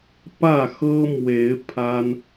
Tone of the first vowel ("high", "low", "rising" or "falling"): falling